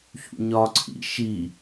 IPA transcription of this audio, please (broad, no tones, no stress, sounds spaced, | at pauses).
ç ṵ ɲ ɒ ǀʰ ḭ ʃ i